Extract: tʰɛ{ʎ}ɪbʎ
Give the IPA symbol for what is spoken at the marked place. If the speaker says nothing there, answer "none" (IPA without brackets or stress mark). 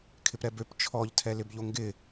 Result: l